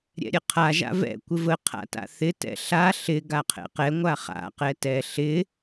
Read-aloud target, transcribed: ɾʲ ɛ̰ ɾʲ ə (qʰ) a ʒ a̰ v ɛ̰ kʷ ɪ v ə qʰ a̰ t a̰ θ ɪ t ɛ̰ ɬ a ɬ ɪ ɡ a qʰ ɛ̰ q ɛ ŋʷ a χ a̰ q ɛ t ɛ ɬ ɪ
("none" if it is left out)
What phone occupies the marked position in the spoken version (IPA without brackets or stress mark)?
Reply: qʰ